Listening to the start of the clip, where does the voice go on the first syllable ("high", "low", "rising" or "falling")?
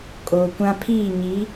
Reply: low